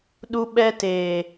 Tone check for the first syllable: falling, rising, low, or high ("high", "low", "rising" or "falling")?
high